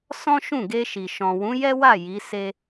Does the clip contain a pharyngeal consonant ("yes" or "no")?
no